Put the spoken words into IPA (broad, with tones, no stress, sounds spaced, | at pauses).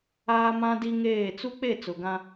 aː˦ m ã˦ d i˦ ŋ eː˦˨ t͡s u˦ k͡p e˦˨ t͡s ʊ˨ ɡ ã˦